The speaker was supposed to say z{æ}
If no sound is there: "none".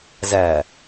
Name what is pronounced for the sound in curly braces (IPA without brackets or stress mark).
æ